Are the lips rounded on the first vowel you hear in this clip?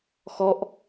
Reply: yes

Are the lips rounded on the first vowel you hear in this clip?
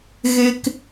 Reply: no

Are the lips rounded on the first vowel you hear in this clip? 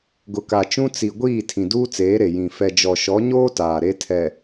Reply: yes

